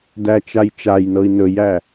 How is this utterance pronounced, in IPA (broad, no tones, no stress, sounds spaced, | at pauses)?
d æ t͡ʃ a j t͡ʃ a j n ɤ i̯ n ɵ j æ